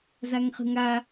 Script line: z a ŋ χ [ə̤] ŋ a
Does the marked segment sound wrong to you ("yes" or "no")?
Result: no